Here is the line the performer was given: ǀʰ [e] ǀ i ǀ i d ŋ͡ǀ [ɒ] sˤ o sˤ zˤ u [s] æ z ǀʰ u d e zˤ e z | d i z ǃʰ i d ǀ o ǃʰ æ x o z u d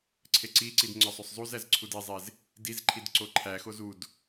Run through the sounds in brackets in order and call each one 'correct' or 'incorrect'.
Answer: correct, correct, incorrect

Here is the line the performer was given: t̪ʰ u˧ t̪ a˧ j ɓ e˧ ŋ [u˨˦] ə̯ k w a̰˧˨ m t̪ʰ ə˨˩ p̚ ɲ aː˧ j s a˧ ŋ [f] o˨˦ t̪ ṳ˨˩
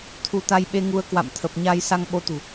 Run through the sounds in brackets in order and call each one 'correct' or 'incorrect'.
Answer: incorrect, incorrect

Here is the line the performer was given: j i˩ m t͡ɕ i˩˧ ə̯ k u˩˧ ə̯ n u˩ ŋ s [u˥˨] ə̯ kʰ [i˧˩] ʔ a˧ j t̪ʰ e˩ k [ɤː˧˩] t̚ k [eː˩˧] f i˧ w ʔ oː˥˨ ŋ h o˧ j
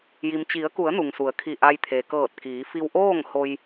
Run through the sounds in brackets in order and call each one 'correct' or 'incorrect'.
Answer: incorrect, correct, correct, incorrect

